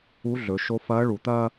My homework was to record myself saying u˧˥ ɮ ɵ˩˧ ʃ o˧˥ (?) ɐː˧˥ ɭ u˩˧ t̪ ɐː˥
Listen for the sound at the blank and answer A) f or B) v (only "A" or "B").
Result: A